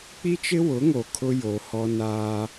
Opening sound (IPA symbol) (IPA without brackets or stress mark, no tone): k͡p